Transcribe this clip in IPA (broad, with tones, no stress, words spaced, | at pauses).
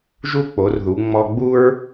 ʒu˥k͡po˩˧r ðu˩˧ ŋ͡mɔ˧ɡ͡bu˥ɹ